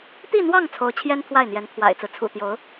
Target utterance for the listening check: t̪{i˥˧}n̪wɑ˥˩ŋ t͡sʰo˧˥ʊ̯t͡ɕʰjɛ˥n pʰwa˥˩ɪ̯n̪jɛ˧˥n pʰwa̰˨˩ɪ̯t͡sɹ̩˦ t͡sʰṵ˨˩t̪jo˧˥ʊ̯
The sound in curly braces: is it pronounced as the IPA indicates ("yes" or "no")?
yes